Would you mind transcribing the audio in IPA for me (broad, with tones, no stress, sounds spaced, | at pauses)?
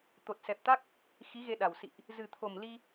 t̪ o˨˩ t̚ s ɛ˨˩ p̚ t̪ a˦˥ k̚ | x i˨˦ ɣ e˧ ɗ a˨˩ w s ḭ˧˨ ʔ | z ɨ˨˩ t̪ʰ o˨˩ m l i˧